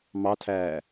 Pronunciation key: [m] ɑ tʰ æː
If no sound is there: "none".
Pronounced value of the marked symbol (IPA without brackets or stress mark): m